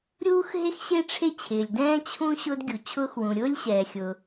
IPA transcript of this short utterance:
ɾʲuː˥xɦe˥xɕe˥ ʈ͡ʂʰe˥t͡ɕʰɪː˩lʲdɛ̃ː˥ t͡ɕʰũ˥ ɕʊː˥dɡʲu˩t͡ɕʰʊː˥xwũ˩ ɾʲʊː˥lʲɕɛː˩ xʲʊ˩

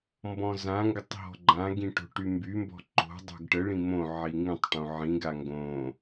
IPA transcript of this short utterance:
mbɔ̃zãŋɡətˤ ɦɔ̤ɡ͡ǃãɡĩ ʈo̤ʈymbymbɔ̤ ǃo̤ dˤo̤ɡʈəɭĩ mõʕi ŋĩtˤʈõ ʕĩɡa ŋɡõ

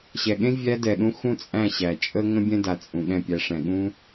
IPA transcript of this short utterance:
ɕɛ˨ɠẽ˦ vʲæ˧dɛ˨ɗũ˧ xũ˦t͡sʼæ̃˦˨ɕæ˨ t͡ʃʼə˦ ŋə̃˦bʲɛ̃˦da˨ t͡sʼũ˨ɠɛ̃˦˨pʲæ˧ʂɛ̃˨ ɠũ˦

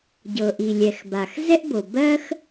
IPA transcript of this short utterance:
ɟɤ˩ʔi˩lʲɛ˩xba˩x zɛ˥ʔbo˩ bɜ˥x

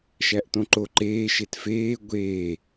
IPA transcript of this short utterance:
ʃæʔtõǃo ǃeː ʃetfeː ɡʷeː

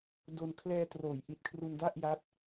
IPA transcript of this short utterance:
do˧n kʰlɛː˧troː˩˦j ʔi˨˩t̚kʰru˧nda˥˩ʔ ja˦˥t̚

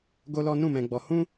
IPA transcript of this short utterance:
ɡo˦lɔ˦ nũ˦˨mɛ̃˧ɡ͡bɔ˧hũ˦

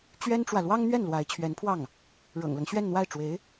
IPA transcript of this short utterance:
t͡ɕɥɛ˥nʈ͡ʂwä˨ lwɑ˥ŋn̪ɥɛ˥˩n lwa˧˥ɪ̯t͡ɕʰɥɛ˧˥npʰwɑ˥˩ŋ | ɻɤ̰˨˩ŋlɤ˦ŋɕɥɛ˥˧nn̪wa˥˩ɪ̯ ʈ͡ʂwe˧˥ɪ̯

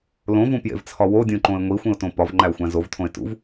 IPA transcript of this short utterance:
lõvũpjḛvt͡sʰɒ wodʲũǃõɪ̯ ŋʷixʷĩʊ̯tõ pɒvŋ͡ǃæʊ̯xʷæ̃ zovtʰõɪ̯ tṵv

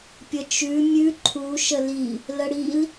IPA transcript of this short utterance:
pʲət͡ʃʉ mʲʉ ǃʰu ʃəli | ləɽil

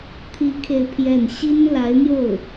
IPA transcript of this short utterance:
t̪ʰi˧˥ kʰe˥˧ɪ̯pʰjɛ˥˩n ɕi˥nla˧˥ɪ̯n̪jo˥˩ʊ̯

